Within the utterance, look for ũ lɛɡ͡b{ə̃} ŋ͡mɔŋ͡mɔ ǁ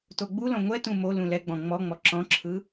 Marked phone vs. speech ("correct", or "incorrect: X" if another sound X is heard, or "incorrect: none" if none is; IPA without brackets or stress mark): incorrect: ɔ̃